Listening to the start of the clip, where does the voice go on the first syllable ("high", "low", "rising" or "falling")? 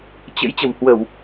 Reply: rising